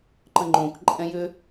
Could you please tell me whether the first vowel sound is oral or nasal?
nasal